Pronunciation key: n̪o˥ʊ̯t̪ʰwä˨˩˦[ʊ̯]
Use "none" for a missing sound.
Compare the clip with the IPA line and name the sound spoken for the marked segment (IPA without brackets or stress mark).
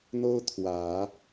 none